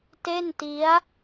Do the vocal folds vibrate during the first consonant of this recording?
no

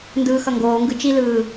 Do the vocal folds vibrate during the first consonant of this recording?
yes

